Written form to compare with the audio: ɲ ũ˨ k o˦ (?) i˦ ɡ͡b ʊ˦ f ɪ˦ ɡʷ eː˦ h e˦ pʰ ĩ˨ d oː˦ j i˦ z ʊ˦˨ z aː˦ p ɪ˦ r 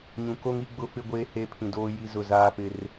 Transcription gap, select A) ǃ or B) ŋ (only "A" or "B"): B